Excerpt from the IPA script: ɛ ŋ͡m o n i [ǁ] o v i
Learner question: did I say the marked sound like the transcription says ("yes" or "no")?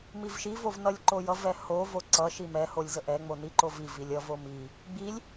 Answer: no